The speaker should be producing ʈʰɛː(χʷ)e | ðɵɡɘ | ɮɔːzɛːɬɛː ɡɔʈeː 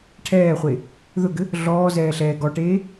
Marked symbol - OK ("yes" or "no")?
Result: yes